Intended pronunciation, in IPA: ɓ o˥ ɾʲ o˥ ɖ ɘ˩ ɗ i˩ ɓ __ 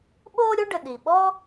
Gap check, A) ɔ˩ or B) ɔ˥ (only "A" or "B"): B